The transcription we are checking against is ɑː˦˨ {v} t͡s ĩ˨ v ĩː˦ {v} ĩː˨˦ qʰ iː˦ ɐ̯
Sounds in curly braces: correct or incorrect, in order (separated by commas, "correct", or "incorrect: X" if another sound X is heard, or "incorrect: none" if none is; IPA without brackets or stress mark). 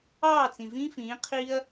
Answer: incorrect: none, incorrect: f